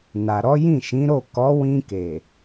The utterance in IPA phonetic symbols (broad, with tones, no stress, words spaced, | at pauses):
na˨ɾɔ˨˦jĩ˦˨ ʃĩ˨˦ɾo˦˨ kɔ˨˦wĩ˧ke˨